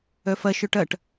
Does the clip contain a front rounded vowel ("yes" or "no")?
yes